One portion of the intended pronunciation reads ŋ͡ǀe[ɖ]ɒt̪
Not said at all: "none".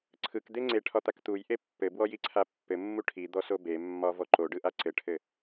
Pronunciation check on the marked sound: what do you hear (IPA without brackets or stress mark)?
ʈʰ